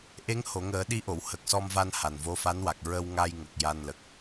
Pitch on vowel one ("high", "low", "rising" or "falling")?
rising